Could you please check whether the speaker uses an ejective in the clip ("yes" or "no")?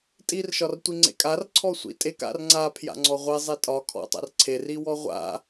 yes